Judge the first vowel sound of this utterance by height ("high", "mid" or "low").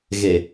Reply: mid